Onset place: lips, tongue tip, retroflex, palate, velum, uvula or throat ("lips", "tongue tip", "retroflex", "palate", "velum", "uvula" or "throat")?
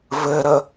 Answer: lips